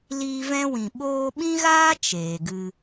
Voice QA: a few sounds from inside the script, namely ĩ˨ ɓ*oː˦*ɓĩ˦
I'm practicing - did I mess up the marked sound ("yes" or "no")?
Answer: yes